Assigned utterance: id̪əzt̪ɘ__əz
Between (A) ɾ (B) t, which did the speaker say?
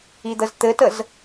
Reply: B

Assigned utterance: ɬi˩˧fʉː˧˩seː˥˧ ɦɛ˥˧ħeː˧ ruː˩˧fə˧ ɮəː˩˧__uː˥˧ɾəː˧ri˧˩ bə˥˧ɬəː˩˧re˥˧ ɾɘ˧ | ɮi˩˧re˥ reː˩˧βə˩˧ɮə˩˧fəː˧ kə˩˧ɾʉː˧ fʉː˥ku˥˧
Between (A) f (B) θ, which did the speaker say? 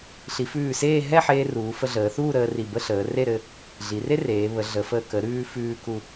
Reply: B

